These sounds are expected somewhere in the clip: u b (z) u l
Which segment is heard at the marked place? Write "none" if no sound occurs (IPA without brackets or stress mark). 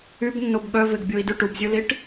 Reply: zʲ